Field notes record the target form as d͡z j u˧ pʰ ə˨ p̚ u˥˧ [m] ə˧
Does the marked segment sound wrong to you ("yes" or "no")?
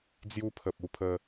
yes